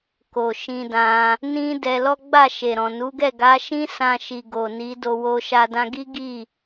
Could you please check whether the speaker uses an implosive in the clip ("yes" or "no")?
no